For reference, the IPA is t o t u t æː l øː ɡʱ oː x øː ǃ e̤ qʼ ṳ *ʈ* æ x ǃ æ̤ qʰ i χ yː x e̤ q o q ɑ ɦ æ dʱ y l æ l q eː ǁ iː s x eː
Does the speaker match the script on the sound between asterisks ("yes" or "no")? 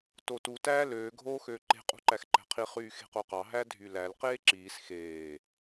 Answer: no